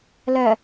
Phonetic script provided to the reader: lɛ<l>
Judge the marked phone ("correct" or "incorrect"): incorrect